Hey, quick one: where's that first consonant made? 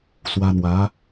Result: tongue tip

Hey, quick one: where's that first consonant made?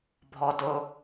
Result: lips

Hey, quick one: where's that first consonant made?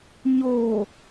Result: palate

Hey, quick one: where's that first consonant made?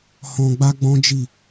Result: throat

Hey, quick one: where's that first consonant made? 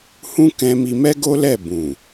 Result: throat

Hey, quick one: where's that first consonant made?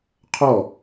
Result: uvula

